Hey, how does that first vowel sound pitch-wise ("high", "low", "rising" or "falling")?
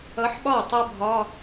rising